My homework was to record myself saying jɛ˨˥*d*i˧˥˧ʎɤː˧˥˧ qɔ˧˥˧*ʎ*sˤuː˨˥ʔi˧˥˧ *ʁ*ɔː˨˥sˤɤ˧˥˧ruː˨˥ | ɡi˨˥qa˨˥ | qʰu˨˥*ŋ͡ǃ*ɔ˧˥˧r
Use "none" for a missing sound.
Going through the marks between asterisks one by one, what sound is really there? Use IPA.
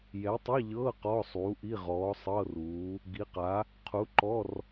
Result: tˤ, none, ʁ, ǃ

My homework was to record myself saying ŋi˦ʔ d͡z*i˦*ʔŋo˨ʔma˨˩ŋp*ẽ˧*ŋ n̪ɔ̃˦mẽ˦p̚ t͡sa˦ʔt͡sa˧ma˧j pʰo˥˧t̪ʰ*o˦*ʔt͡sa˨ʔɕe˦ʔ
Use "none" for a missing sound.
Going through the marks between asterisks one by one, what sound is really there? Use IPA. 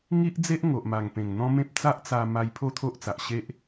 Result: e˦, ẽ˨˩, o˦

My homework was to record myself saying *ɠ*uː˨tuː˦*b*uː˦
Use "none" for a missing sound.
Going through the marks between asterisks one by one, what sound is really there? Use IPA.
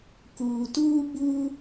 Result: k, b

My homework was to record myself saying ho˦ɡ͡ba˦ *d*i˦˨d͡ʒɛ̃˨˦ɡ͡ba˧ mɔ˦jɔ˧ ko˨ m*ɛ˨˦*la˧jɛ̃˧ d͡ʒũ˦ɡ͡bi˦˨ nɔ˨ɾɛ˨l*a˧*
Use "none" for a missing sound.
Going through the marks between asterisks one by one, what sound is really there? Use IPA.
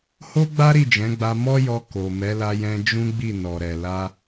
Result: ɾ, ɛ˨˦, a˧

